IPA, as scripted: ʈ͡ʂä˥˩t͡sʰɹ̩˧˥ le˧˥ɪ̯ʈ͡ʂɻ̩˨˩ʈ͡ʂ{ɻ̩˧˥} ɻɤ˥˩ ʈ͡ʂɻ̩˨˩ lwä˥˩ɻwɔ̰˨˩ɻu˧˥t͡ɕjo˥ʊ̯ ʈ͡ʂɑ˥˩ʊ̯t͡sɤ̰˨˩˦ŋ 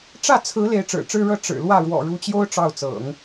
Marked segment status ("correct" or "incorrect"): incorrect